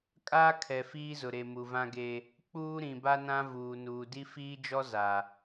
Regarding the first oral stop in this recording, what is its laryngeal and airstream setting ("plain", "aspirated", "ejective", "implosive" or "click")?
ejective